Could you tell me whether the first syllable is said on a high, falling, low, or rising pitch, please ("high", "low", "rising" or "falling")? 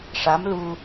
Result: rising